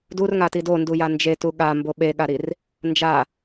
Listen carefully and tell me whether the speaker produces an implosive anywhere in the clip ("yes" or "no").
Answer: yes